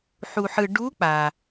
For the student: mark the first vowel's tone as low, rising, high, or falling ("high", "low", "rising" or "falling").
low